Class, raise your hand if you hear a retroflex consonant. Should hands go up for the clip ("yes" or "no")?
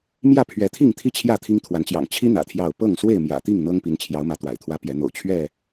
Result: no